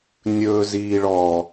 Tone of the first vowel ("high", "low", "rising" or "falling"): high